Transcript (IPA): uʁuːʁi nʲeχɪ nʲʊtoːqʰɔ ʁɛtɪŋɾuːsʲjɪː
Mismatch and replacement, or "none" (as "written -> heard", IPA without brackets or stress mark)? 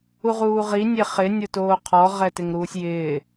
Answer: none